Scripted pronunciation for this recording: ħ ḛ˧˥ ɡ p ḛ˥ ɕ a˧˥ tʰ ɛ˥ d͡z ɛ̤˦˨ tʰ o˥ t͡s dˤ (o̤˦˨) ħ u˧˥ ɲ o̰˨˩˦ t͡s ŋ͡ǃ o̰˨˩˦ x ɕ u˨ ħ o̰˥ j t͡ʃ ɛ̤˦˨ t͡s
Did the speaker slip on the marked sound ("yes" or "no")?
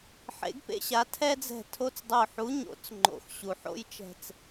yes